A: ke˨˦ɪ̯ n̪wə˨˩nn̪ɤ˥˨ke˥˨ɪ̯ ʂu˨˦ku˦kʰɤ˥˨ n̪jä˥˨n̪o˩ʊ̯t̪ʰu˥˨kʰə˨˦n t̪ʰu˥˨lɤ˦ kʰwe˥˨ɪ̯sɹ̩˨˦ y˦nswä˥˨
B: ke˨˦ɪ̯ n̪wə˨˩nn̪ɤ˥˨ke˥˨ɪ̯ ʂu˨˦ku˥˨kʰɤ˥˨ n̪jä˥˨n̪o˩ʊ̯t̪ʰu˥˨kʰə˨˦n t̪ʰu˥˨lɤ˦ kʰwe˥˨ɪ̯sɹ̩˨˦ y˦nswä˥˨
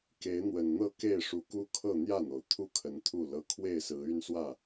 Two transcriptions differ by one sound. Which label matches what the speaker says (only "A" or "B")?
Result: A